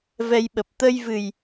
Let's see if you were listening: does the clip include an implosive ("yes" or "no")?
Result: yes